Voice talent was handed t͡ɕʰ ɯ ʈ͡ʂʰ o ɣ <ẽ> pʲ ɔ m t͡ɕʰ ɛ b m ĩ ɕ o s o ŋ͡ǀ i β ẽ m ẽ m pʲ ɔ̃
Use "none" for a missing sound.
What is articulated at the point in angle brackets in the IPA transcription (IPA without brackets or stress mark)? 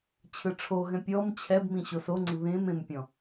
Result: ɛ̃